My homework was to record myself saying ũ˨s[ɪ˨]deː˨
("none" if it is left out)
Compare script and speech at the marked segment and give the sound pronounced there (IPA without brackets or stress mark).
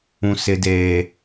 ɪ˨